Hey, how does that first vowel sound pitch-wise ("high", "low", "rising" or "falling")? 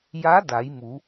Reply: rising